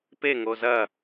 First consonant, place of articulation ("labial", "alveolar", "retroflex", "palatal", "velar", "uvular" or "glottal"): labial